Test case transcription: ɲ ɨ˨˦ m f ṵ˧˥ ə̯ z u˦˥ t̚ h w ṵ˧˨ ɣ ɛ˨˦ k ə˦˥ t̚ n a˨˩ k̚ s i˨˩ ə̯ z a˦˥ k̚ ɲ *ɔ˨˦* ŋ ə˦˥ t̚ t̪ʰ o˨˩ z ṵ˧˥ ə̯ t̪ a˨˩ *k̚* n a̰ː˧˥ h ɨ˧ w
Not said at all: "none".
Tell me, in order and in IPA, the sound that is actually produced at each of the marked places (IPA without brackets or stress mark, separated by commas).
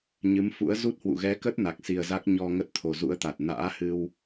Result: ɔ˧, t̚